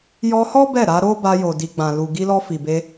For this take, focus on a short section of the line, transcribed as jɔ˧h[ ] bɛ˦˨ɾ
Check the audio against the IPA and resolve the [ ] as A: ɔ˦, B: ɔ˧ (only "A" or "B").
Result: A